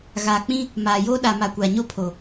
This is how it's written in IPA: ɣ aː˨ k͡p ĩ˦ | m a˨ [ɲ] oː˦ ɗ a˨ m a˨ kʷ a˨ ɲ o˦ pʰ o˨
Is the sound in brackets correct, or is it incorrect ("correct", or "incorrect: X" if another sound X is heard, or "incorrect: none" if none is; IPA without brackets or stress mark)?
incorrect: j